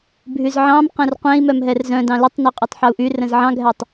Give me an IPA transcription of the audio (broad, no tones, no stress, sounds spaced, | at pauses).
bʱ y z ʕ ɑ̃ m q ɛ̃ r qʷ ɛ̃ i̯ m œ m ɦ ɛ r z œ̃ d ɑ̃ l ʏ tˤ n y qʼ y tˤ ħ ɑ u̯ ʔ y r ə̃ z ʕ ɑ̃ ɡʱ ɛ tˤ